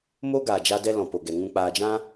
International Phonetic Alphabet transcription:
mo˦ ɡaː˨d͡ʒa˧dɛ˧ lɔ̃˨po˨ɡɛ˨ŋũ˧ k͡paː˨d͡ʒã˧

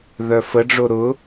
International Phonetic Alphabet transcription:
ðœfəɖ͡ʐo ɾʊ

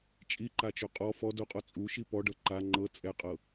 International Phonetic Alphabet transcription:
t͡ʃʼiǃat͡ʃo qʼɔ fɔ doqʼɔ t͡sʼuʃi pɔɖɤ ǃa ŋ͡ǃɤ t͡sʼɛqʼɤ

